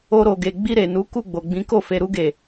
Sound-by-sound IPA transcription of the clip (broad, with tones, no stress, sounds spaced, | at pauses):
o˧ ɾ o˨ ɡ e˨ ɡ͡b i˧ ɾ e˨ n u˨˦ k u˦˨ ɡ͡b o˨ ɡ͡b ĩ˨˦ k o˦˨ f e˨ ɾ u˧ ɡ e˨